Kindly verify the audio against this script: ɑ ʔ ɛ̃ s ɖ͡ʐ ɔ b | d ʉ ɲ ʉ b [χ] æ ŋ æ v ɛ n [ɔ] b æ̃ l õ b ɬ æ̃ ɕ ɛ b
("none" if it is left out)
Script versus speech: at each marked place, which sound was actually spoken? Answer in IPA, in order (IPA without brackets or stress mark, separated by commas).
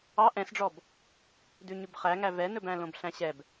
χ, ɵ